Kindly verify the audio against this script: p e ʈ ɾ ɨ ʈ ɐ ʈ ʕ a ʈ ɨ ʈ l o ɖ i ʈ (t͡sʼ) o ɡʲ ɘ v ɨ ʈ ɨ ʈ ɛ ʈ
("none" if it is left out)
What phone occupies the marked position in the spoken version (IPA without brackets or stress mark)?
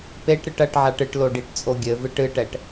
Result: t͡sʼ